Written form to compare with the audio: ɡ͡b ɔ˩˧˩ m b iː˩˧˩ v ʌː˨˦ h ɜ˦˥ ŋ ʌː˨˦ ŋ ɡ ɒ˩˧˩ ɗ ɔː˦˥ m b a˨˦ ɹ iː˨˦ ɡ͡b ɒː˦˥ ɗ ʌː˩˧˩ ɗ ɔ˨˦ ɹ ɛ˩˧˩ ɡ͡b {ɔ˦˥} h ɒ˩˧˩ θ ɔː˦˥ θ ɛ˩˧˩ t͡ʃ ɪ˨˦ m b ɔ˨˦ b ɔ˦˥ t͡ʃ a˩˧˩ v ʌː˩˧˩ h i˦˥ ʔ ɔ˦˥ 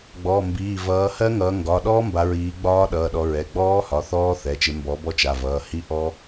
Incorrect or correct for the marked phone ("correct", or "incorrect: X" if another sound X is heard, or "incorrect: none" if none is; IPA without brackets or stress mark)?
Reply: incorrect: ɔː˦˥